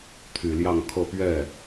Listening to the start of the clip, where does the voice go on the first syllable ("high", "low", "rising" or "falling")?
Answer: low